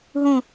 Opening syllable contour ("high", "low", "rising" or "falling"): falling